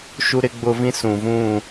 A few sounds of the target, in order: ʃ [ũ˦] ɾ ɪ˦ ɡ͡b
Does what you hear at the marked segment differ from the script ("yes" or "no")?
yes